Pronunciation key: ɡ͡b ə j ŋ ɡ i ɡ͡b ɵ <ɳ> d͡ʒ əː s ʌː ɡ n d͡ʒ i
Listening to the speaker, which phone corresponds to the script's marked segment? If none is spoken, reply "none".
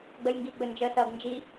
n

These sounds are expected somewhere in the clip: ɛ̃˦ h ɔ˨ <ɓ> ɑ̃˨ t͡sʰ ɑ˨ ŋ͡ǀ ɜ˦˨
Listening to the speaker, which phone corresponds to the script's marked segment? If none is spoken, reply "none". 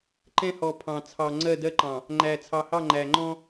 pʰ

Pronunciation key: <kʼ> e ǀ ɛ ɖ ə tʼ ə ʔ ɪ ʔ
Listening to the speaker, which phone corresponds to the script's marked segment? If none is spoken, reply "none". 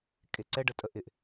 kʼ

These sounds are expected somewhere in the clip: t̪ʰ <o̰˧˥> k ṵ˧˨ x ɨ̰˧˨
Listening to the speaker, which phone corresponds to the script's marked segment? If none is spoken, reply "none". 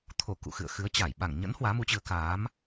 o˧˩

